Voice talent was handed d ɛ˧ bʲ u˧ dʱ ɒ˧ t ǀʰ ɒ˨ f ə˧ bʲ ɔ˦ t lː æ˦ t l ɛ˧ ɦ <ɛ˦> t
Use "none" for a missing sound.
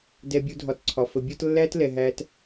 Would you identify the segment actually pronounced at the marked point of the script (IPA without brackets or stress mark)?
æ˦